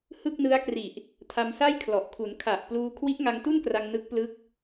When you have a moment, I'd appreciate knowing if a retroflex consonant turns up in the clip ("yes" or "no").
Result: no